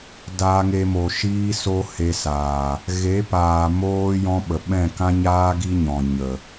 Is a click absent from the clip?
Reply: yes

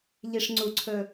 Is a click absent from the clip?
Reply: no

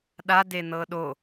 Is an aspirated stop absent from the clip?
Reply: yes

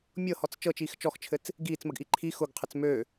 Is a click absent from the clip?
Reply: no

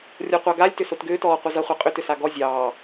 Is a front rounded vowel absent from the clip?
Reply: no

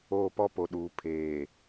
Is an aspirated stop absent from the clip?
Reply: no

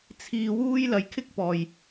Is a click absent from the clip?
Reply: yes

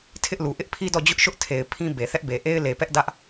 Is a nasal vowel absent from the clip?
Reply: no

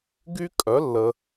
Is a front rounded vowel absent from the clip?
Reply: no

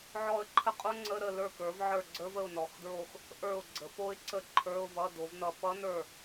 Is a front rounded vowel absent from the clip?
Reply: yes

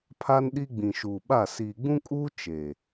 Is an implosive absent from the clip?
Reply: no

